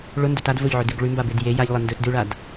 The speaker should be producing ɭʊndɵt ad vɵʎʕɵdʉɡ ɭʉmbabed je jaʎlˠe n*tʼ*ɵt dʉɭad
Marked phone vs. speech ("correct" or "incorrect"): incorrect